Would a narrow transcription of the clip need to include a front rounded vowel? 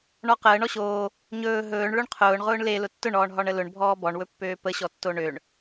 yes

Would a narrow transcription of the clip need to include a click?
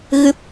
no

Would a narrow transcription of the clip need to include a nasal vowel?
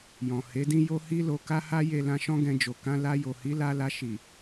yes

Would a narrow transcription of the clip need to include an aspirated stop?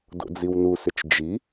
no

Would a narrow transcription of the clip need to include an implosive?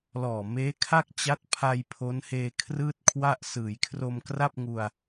no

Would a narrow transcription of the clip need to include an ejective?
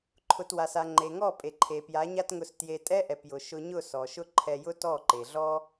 yes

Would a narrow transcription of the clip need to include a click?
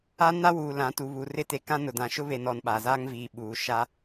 no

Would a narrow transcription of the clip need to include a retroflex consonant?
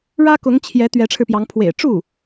yes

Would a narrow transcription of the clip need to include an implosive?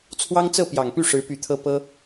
no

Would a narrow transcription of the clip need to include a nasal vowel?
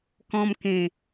yes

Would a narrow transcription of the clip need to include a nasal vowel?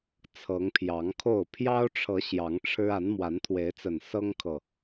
no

